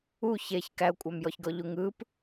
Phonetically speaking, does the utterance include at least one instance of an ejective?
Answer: yes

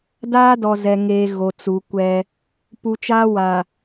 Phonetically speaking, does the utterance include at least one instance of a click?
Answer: no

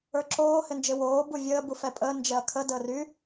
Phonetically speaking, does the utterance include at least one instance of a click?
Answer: yes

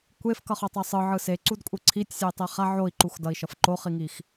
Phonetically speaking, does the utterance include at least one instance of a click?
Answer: yes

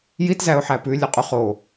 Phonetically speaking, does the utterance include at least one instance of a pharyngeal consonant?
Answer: yes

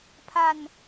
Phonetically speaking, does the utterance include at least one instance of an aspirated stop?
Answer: yes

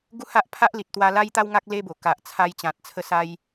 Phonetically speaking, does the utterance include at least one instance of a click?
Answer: no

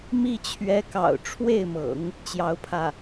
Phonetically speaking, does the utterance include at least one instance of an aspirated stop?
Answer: yes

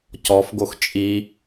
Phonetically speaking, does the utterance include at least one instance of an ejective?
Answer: yes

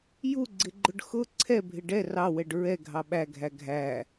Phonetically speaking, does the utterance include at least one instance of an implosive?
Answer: yes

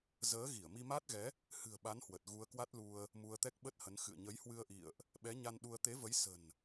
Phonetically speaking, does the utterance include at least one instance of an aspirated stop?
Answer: no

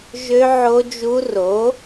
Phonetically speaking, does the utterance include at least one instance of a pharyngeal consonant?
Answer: yes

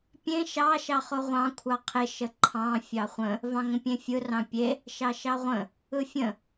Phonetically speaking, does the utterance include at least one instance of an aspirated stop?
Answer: yes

